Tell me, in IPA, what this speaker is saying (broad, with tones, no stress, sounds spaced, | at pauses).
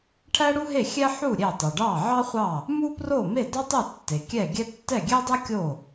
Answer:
ʈʰ æ˥ ɽ u˥ ɦ e˥˩ xʲ ɛ˥ ħ u˥˩ ɾʲ e˥˩ tˤ ɵ˩ ɖ ɑ˥˩ ʕ ɑ˥ χʷ ɑ˥˩ | m u˥ p r o˥˩ m e˥˩ d ɑ˥ tˤ e˥˩ tː e˩ kʲ ɛ˥˩ ɡʲ ɛ˥ tː ɛ˥˩ ɡʲ ɛ˥ dˤ ɛ˥ kʲ o˥˩